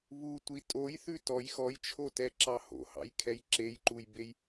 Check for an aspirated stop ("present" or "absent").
present